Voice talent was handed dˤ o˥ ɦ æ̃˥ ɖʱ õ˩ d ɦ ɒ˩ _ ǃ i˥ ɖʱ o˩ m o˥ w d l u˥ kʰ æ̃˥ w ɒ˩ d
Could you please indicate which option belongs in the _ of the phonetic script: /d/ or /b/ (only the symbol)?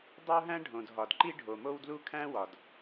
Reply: d